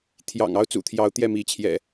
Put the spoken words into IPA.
t̪ʰjɑ̰˨˩ŋ ɑ˦ʊ̯t͡sṵ˨˩t̪ʰjɑ˨˦ʊ̯ t̪jɛ˥˨mi˨˦ t͡ɕʰjɛ̰˨˩

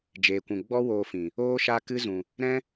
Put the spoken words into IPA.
d͡ʒeː˨kʷũ˨ ɡ͡bɔ˦woː˧fĩ˨ | oː˦ʃa˦kɨ˦zũ˨ | ɾɛ̃˦

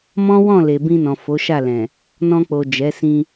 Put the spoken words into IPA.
mɔ̃˦wɔ̃˦˨ le˨bĩ˧nɔ̃˨ fo˨˦ʃa˦˨lɛ̃˨ | nɔ̃˧k͡po˨d͡ʒɛ˨˦ sĩ˧

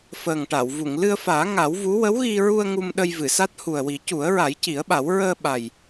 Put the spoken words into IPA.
fəː˨˩ŋʈa˨˩˨wvu˨˩˨ŋ lɨ˧ə̯faː˨˩˦ ŋa˨˩˦w vu˧˥ wə˧˥wɣi˧ɹu˧ə̯ ŋu˧m ɗə˧jvɨ˨˩˨sa˦˥t̚ hu˨˩ə̯wi˨˩˦ cu˨˩˦ə̯ɹa˨˩˦jci˨˩˦ə̯ɓa˨˩˦w ɹəː˧ɓa˨˩j

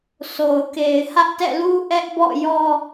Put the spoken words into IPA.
so˨ʊ̯ke˨ɪ̯ hä˦ʔtɛ̰˦˨lu˦ ʔɛ˦ʔbɔ̰˦˨jɔ˦

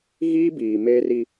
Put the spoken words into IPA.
ɣiː˦ biː˨ meː˦ri˦

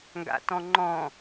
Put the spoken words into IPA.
ŋɡa̰tɔ̃ŋ͡ǃɔ̃

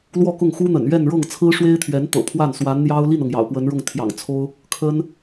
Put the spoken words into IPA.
lwɔ˥˧kʊ˥˩ŋxu˥n̪ə̰˨˩n ɥɛ˥˧nɻɤ˥˩ŋ t͡sʰɹ̩˥ʂwe˥ɪ̯t̪ʰɥɛ˧˥nt̪ɤ̰˨˩ pʰwa˥˩n swa˧˥nn̪jɑ˥ʊ̯ li˥˩nɤ˩ŋ jɑ̰˨˩ʊ̯pwə˧˥nɻʊ˥˩ŋ t̪ʰjɑ̰˨˩ŋt͡sʰo˥ʊ̯ | kʰə˥n

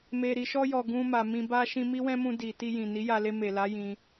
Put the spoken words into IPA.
me˨ɾi˨ʃɔ˧jɔ˨ ɡũ˨ ma˨mĩ˧ba˦ ʃĩ˧mi˦wɛ̃˦mũ˧ di˨ti˧ jĩ˨ni˨˦ja˧ le˧me˨la˨˦ jĩ˧

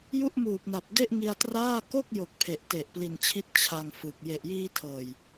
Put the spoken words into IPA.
ju˥˩ʔmuː˨˩p̚na˨˩p̚ de˥˩ʔŋi˧a̯traː˥˩ ko˥˩k̚jo˨˩k̚ pʰe˨˩ʔte˨˩ʔpli˨˩nt͡ɕʰi˦˥t̚ t͡ɕʰa˧ŋ fɯ˨˩k̚ je˨˩ʔjiː˧tʰɤː˨˩j

